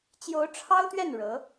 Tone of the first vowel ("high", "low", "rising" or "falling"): rising